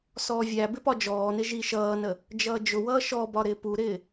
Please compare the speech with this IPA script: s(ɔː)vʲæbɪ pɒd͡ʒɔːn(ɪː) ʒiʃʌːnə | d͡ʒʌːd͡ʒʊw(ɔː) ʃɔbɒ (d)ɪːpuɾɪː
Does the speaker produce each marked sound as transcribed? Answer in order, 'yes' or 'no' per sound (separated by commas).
yes, no, no, no